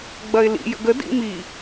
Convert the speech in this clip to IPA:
ɡ͡b ɐ ɪ̯ l ḭ j ə̰ ɡ ə d ḭ m i

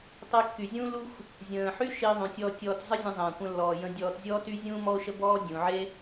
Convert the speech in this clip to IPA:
tˤ e˧ kː y˩ zʲ ũː˥ l u˥ xʷ | zʲ ə̃ː˩ ħ y˥ ʃ i˧ ðˤ ũ˩ tʲ ɔ˧ tʲ ɔː˧ t zˤ ə˥ zʲ ə̃˧ zˤ ə̃ː˩ kʷ ə̃˧ lː ɔː˩ j ə̃˧ dʲ ɔː˧ t zʲ ɔː˥ t y˥ zʲ ũː˥ m ɔ˥ o̯ ʃ ə˥ b ɔː˥ dʲ ũ˩ ʕ e˥

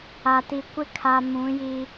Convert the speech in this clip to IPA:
a˨ t i˨ kʷ ɪ˦ kʰ a˨ m ũ˨˦ j i˦

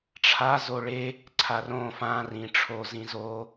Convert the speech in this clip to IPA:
ʈ͡ʂʰ a z o ɭ e | ǀʰ a r õ f ã r ĩ ʈ͡ʂʰ o z ĩ z o

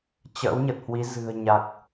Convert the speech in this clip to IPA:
t͡ɕ ə̰ː˧˥ w ɲ ə˨˩ t̚ h w i˨˦ z ɨ̤˨˩ ə̯ ɲ a˨˩ k̚

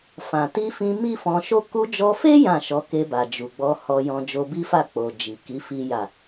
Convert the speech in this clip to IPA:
f ã˨ t i˧ f ĩ˧ m i˦ f ɔ̃˧ ʃ o˦ k u˧ d͡ʒ ɔ˧ f e˦ j ã˦˨ ʃ ɔ˨˦ k e˧ b a˨ d͡ʒ u˨ ɡ͡b ɔ˧ h ɔ˧ j ɔ̃˧ d͡ʒ o˧ b i˦ f a˦˨ k͡p o˨ d͡ʒ i˨ k i˨˦ f i˦ j a˦˨

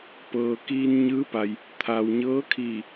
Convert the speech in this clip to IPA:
p ɤː˩ k iː˧ n ɲ ɯː˧˥ p a˩ j | t̪ʰ a˩ w ɲ ɤː˧˥ kʰ i˧˩

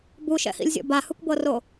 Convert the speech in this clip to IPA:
b u ʃ ɛ̰ h ḭ lʲ zʲ ɔ̰ b a h ɯ kʷ b ɤ r o

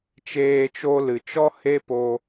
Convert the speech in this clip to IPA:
t͡ʃ eː˧ t͡ʃ o˧ l ɨ˨ t͡ʃ ɔ˦ h e˦ p o˧

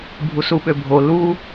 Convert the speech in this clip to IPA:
bʱ u s u ɓ ø bʱ o l u

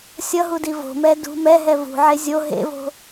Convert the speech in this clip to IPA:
sʲ ʌ ɦ u d i v o̤ m ɛ d ṳ m ɛ ɦ ɛ v ṳ ʕ e zʲ o ɦ ḛ v o̤

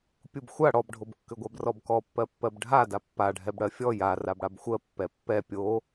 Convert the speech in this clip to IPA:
pʲ u b xʷ a ɽ ɔ b ɖʱ o b kː ʏ ɡʷ a b r ɔ b k ɔ pː ɜ pː ɜ b ɖʱ a d a pː a ɖʱ ɛ b ɽ ɜ fʲ ɔ j a r a b ɽ a b xʷ ɜ pː ɛ pː ɛ pʲ o

